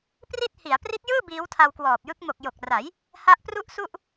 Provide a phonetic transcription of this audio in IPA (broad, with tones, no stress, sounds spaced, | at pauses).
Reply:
p r i˥˩ t̚ h i˩˦ a̯ p r i˦˥ t̚ j ɯː˥˩ b iː˦˥ w tʰ a˧ w k w ɔː˨˩ p̚ j ɯ˦˥ k̚ m o˨˩ k̚ j o˨˩ k̚ r a˩˦ j | h a˦˥ ʔ p r u˥˩ ʔ s u˥˩ ʔ